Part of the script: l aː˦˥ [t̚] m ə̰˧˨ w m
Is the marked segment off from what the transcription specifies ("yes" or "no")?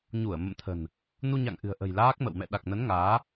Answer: yes